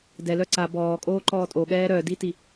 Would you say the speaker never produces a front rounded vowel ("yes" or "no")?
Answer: no